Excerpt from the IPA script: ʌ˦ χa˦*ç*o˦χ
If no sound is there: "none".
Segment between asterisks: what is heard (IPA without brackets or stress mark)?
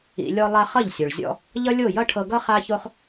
ç